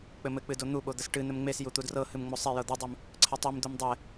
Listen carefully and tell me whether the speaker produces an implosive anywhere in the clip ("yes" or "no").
yes